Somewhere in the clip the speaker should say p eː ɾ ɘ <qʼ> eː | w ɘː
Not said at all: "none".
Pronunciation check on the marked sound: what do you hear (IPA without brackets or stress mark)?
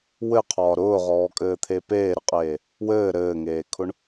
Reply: qʼ